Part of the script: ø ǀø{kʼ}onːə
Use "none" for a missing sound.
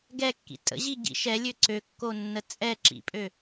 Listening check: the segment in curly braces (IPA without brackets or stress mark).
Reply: kː